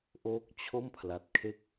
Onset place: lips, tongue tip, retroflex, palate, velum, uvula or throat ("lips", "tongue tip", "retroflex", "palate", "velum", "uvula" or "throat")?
throat